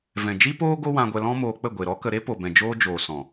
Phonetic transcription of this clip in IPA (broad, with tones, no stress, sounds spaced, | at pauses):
v ɛ̃˨ d͡ʒ i˦ p oː˦ ɡ o˦ w ã˧ ɡʷ ɛ˧ l ɔ̃˦ m oː˧ k͡p ə˦˨ ɡʷ e˨ ɾ ɔ˦ k ə˧ ɾ e˦ p o˨ b ɛ̃˨ d͡ʒ oː˦ d͡ʒ oː˨ s ɔ̃˨